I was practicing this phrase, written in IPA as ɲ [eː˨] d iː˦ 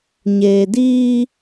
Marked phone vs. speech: correct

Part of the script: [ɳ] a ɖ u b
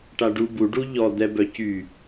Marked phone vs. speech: incorrect: ʈ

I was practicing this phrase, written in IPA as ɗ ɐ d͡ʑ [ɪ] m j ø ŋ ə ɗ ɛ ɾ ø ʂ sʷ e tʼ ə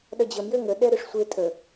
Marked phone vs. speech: incorrect: ə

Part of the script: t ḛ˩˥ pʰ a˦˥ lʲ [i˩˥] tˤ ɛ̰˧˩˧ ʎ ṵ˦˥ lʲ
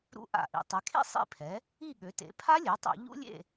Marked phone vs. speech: incorrect: e˩˥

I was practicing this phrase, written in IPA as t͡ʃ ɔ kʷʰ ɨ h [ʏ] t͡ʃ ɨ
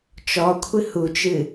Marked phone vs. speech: incorrect: u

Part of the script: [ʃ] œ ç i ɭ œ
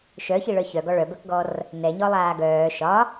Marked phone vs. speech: correct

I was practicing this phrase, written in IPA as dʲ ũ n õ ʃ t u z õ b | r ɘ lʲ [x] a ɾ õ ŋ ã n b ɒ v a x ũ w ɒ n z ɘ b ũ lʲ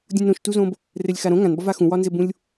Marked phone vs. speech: correct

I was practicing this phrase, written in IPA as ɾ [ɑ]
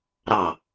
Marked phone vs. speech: correct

